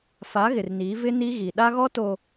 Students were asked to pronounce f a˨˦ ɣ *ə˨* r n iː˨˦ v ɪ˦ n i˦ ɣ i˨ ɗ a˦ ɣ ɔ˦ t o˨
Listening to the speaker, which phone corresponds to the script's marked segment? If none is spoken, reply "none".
ɪ˨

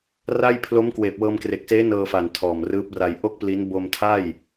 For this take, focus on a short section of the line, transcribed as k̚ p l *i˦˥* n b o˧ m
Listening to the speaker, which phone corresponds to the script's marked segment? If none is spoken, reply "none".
i˦˥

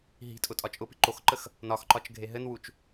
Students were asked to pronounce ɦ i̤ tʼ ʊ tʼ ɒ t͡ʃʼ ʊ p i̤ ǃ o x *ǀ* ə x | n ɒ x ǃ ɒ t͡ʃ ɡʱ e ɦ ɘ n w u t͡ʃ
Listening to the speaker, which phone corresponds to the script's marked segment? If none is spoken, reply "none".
ǃ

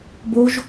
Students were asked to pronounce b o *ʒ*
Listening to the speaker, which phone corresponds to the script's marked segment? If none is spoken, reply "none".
ʒ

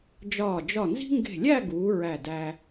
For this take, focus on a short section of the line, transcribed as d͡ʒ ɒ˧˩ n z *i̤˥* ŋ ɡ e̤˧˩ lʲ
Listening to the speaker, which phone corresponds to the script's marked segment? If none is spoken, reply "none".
i̤˥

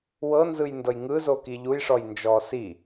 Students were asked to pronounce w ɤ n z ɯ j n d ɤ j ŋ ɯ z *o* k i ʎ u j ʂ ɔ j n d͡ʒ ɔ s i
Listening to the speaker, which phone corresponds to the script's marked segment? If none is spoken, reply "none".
o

